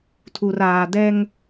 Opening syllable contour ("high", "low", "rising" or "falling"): low